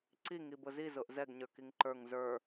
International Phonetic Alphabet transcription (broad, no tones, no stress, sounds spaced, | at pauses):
ǀ i ŋ i b ʊ z i z ʊ ʔ z ɛ ɡ ɲ ə˞ k i ŋ ǃ ə˞ ŋ z ə˞